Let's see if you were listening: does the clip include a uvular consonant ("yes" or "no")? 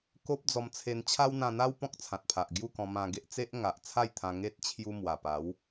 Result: no